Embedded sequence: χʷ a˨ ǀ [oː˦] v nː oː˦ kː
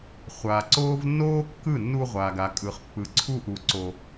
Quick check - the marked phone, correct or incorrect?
correct